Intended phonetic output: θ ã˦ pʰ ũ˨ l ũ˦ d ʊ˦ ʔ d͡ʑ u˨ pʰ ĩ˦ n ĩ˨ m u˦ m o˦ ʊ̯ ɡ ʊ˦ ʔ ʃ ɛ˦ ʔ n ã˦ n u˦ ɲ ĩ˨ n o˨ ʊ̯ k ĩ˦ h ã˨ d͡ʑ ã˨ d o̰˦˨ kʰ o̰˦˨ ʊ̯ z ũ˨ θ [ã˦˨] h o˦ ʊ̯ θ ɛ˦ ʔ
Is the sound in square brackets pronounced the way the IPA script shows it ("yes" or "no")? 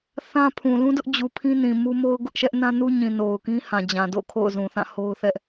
yes